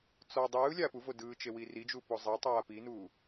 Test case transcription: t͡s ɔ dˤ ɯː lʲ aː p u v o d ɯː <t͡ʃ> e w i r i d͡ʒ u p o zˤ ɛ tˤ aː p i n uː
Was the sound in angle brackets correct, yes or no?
yes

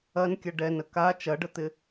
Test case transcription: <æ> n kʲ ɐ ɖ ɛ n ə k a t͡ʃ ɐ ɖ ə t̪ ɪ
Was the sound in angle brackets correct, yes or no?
no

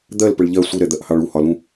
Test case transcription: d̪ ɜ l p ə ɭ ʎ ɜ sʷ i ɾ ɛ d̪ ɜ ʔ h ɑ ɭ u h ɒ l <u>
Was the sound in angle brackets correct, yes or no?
no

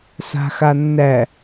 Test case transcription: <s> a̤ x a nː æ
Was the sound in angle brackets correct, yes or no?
yes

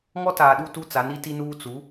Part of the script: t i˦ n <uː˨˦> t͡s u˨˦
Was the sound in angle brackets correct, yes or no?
no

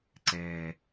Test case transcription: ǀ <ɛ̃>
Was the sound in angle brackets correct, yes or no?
no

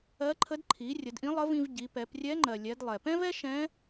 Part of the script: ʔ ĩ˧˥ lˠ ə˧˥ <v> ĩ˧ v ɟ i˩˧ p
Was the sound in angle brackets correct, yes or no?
yes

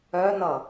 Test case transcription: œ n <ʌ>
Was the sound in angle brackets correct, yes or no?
yes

